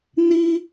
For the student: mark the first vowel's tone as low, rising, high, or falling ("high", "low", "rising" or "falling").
high